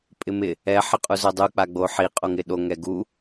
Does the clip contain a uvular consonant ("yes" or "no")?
yes